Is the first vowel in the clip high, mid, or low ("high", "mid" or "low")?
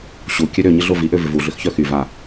high